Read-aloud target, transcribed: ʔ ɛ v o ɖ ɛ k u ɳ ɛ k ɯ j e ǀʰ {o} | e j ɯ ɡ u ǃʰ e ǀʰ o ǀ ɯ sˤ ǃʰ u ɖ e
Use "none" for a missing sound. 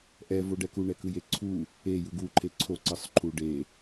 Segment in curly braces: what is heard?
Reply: u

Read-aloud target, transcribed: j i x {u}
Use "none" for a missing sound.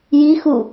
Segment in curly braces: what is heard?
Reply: u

